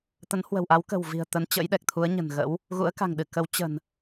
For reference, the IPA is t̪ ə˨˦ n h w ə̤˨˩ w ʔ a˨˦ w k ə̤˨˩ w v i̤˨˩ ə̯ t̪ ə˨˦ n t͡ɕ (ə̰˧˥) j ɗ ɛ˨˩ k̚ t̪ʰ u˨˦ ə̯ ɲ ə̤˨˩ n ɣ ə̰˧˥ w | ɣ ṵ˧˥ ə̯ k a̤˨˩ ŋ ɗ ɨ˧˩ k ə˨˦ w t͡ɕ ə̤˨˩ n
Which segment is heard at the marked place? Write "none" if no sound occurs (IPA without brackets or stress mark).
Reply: ə̰˧˥